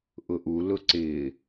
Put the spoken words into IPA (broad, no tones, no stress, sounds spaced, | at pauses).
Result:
ʔ ʊ ʔ u l ʊ ǀ ɪː